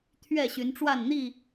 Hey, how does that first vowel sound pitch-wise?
falling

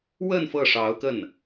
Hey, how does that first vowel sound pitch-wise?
falling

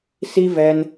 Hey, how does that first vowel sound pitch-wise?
high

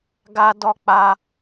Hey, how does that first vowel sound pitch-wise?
high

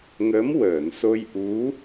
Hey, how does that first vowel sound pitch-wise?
rising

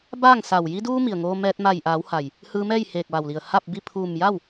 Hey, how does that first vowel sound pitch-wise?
falling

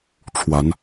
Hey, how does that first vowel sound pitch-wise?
rising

